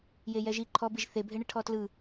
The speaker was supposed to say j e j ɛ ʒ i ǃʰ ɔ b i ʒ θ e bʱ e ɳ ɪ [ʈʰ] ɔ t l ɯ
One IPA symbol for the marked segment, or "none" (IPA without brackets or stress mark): ʈʰ